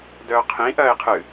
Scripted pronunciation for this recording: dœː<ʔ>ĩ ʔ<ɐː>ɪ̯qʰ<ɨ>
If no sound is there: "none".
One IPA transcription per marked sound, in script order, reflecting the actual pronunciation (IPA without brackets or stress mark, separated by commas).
qʰ, ɐː, ɨ